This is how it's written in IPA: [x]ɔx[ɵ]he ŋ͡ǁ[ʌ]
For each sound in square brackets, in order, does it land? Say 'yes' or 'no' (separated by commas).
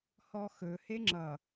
no, yes, yes